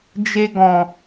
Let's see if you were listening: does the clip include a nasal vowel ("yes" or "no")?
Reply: yes